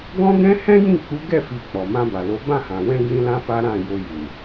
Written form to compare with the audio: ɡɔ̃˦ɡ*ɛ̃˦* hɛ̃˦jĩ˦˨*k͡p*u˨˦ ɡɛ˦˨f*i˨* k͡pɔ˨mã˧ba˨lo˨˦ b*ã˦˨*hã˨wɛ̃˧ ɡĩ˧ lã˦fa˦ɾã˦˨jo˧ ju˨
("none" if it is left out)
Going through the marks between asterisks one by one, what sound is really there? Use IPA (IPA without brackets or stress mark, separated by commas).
ɛ̃˦, k͡p, i˨, ã˦˨